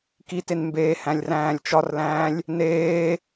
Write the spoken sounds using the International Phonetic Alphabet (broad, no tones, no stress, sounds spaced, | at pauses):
k i t e n m b eː h æ̃ lʲ r æ̃ː lʲ t͡ʃ ɒ r l æ̃ː lʲ | n eː